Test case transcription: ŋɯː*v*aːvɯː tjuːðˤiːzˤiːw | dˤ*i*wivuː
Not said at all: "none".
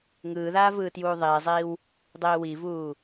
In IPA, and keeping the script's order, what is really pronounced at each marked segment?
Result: ð, iː

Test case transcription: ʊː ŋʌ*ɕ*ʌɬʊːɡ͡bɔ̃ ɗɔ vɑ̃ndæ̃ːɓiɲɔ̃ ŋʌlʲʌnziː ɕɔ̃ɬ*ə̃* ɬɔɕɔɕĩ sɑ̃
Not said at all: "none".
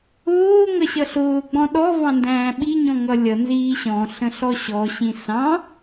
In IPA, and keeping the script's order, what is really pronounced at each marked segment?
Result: ɕ, ə̃

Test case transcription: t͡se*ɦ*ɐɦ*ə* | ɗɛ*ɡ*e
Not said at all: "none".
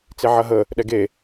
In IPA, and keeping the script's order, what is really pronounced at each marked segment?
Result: ʕ, ə, ɡ

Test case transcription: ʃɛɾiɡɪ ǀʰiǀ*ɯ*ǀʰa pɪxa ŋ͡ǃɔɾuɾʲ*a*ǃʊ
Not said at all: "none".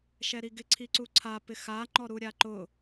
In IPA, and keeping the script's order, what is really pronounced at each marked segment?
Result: u, a

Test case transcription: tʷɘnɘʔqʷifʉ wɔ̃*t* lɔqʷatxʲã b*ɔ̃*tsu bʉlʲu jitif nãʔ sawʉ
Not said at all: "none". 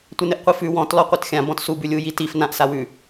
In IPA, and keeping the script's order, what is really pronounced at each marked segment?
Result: t, ɔ̃

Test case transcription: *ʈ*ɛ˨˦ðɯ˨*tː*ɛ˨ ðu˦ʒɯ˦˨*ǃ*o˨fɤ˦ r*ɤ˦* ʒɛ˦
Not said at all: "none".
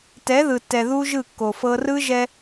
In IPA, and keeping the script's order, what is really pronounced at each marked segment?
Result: t, tː, kː, ɯ˦

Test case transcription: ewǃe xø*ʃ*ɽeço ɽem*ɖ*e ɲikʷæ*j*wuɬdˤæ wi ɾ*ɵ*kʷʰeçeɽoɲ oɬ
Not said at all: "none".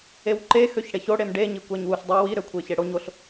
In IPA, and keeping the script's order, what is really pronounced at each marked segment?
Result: ç, ɖ, ɲ, ø

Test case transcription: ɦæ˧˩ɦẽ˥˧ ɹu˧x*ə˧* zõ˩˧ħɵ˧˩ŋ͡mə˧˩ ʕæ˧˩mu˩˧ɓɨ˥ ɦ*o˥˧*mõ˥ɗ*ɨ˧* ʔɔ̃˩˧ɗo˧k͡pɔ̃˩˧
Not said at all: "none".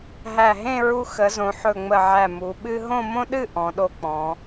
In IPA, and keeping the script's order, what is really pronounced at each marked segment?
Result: ə˩˧, õ˥˧, ɨ˥˧

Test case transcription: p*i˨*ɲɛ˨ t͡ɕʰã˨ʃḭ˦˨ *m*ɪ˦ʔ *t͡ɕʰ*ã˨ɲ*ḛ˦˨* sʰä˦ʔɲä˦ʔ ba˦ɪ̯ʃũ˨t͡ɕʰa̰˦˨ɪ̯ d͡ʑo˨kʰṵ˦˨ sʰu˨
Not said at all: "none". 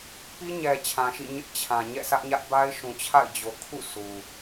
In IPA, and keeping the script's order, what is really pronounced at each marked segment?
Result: i˦, ɲ, t͡ɕʰ, ɛ̰˦˨

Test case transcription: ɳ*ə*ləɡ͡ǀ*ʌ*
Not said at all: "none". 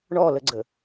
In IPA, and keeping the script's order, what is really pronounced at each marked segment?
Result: ɔ, ə

